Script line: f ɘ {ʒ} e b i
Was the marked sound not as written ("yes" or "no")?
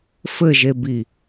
no